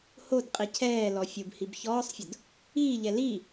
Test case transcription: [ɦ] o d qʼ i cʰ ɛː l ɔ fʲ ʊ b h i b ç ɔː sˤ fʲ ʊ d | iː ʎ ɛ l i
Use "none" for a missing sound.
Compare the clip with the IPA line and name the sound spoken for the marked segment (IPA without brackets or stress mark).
h